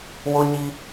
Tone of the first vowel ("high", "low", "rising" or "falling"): high